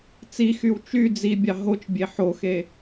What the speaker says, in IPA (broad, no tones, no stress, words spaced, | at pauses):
t͡sixyw t͡ʃy d͡zibʲɑ ɦot͡ʃbʲe ħoxe